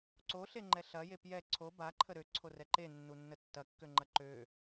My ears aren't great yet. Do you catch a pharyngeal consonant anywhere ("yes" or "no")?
no